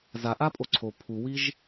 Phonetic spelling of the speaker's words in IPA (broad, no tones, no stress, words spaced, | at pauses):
zaʔapʼo ǀʰo pʰuwiʒ